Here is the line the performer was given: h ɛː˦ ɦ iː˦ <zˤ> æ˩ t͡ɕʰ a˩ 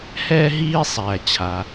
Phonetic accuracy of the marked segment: incorrect: sˤ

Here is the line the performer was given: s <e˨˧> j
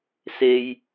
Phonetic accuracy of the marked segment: incorrect: e˥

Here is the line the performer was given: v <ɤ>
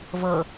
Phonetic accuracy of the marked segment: correct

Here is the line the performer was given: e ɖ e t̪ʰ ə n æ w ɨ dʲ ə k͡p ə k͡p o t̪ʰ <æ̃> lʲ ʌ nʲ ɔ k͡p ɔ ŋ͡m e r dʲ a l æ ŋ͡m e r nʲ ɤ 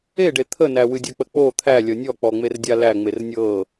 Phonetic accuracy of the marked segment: incorrect: æ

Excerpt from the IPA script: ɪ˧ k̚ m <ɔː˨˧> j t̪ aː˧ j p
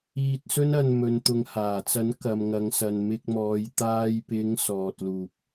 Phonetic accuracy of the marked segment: correct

